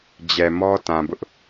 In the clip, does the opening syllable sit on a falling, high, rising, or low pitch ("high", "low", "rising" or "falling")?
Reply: low